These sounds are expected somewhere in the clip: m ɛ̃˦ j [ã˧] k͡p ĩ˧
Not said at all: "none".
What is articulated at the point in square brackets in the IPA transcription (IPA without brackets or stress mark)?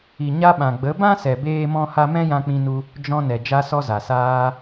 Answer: ã˧